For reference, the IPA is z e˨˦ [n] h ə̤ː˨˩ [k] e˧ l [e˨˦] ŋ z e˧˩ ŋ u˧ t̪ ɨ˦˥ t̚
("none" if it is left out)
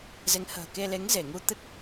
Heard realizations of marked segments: ŋ, k, e˨˦

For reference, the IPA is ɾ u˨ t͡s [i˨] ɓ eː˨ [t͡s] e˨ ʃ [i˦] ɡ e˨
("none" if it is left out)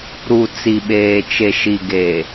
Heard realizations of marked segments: i˨, t͡ʃ, i˨

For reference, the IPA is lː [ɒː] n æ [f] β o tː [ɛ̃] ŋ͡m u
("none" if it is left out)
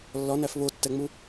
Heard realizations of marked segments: ɒ, f, ɛ

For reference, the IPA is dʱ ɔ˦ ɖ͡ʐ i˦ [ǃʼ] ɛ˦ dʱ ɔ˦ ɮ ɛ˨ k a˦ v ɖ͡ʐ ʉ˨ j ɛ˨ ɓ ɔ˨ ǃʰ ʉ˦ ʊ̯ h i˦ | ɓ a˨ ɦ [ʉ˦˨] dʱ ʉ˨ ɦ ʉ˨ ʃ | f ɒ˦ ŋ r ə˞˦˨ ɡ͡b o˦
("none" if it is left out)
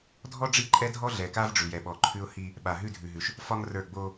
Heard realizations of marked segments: ǃʼ, ʉ˦˨

